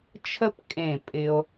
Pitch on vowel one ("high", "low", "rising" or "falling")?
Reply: high